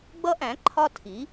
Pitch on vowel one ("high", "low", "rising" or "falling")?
high